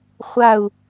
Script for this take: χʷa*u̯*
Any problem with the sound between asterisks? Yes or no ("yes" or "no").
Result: no